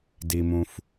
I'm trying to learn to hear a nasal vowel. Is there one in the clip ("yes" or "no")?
yes